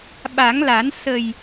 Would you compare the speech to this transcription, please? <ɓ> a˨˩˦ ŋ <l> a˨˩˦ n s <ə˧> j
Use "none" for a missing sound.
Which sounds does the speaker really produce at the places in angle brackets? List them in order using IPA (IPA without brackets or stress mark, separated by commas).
ɓ, l, ə˨˩